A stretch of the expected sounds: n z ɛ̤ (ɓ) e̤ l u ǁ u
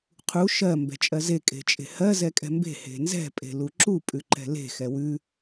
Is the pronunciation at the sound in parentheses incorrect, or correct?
incorrect: pʼ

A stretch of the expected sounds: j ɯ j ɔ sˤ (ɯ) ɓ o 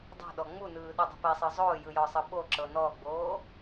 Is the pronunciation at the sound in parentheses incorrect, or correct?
incorrect: ɤ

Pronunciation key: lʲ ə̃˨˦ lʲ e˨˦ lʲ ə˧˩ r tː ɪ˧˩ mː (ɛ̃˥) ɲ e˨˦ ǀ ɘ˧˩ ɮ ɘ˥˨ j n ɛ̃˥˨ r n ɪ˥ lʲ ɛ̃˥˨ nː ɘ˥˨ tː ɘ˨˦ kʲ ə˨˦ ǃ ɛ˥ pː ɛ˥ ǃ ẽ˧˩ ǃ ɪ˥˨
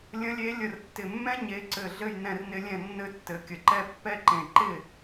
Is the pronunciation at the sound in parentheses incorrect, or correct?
correct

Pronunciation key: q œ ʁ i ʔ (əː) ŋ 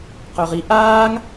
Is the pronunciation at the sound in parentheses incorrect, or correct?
incorrect: aː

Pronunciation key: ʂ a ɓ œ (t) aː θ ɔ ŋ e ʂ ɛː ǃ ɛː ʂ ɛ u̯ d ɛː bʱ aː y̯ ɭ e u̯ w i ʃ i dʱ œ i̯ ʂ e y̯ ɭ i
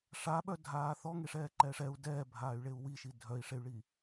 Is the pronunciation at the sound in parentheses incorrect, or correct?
incorrect: dʱ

